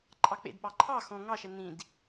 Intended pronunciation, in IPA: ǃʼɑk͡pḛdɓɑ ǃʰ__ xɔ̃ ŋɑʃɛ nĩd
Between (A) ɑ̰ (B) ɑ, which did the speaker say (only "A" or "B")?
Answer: B